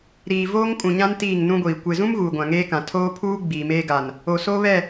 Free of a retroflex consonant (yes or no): yes